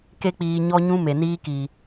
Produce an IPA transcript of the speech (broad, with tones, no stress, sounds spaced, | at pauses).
k e˦ k͡p iː˧ ɲ ɔ˦ ɲ ũ˦ m e˨ n iː˦ k i˨